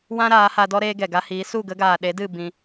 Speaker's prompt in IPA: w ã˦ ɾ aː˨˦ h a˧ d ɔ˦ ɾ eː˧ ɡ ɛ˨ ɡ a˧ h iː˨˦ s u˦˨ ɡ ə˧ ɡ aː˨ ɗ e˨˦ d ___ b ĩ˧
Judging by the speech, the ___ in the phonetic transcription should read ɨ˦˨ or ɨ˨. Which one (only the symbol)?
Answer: ɨ˦˨